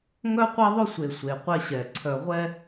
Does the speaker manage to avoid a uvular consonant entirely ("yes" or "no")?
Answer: no